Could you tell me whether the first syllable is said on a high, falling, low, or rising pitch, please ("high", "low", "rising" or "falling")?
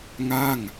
falling